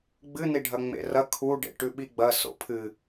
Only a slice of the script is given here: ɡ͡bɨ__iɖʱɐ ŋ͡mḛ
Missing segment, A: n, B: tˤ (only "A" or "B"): A